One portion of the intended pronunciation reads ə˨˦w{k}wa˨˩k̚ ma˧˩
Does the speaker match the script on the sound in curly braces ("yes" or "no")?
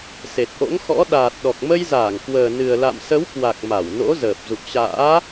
yes